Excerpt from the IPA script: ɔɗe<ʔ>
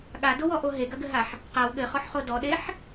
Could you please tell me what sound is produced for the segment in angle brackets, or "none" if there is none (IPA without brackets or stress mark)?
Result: ħ